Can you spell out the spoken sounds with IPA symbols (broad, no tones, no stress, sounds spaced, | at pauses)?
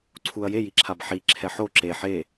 ǀʰ u ɐ̯ j e j i ǁʰ a b ħ i ǁʰ ɛ ħ o ǁ e ħ e